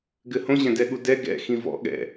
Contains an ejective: no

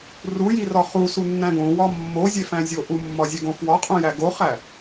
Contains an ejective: yes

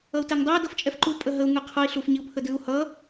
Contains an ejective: yes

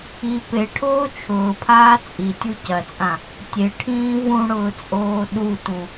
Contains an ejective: yes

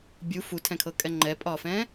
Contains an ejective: yes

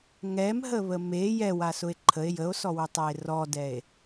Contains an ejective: no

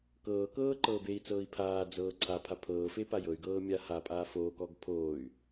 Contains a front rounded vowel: yes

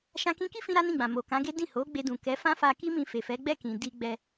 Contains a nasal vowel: yes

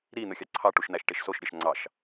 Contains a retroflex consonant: yes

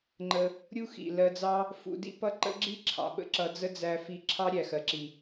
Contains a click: yes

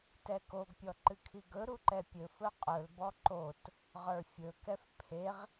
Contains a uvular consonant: yes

